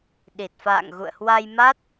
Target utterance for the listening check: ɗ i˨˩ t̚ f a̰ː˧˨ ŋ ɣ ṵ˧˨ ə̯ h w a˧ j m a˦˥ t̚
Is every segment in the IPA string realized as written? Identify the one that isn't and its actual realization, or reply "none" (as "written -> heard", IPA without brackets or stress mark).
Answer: none